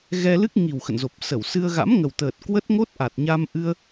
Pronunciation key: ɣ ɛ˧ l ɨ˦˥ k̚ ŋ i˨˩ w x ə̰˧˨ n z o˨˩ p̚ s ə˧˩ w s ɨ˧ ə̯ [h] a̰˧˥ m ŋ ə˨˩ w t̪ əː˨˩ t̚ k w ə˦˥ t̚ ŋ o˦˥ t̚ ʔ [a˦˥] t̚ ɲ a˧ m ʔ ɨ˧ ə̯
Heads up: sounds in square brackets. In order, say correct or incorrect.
incorrect, incorrect

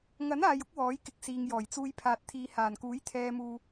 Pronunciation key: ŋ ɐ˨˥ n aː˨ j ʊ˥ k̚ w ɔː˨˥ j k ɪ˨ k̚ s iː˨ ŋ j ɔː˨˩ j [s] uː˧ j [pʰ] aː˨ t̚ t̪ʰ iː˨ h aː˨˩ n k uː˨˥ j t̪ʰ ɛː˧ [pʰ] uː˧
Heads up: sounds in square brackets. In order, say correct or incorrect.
incorrect, correct, incorrect

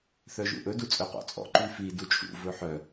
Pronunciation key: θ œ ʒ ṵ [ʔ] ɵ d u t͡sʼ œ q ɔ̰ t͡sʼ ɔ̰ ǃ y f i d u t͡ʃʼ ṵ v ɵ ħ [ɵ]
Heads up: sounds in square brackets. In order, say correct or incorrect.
correct, incorrect

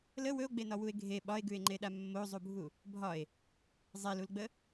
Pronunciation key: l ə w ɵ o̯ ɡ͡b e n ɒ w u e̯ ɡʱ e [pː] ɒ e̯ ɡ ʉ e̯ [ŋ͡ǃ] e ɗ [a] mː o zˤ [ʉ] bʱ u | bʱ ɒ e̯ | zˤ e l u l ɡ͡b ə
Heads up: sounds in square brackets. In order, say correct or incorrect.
incorrect, correct, correct, incorrect

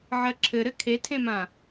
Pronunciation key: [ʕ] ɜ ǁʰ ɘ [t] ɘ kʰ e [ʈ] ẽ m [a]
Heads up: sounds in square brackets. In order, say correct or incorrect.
correct, incorrect, incorrect, incorrect

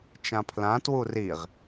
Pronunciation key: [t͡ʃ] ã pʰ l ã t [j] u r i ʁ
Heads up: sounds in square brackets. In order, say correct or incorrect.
correct, incorrect

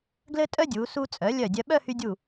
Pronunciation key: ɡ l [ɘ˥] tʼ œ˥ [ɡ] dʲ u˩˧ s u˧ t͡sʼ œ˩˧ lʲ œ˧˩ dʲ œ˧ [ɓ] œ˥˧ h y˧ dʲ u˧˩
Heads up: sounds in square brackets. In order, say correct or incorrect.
correct, incorrect, correct

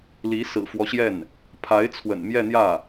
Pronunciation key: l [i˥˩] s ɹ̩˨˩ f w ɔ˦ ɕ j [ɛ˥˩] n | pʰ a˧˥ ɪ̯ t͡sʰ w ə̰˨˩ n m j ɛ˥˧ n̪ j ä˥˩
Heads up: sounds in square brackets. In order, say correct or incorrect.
incorrect, correct

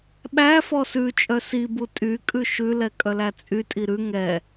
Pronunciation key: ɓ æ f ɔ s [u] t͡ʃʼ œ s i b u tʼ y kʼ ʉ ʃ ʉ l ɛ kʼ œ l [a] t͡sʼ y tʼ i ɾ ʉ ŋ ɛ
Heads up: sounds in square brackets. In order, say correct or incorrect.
incorrect, incorrect

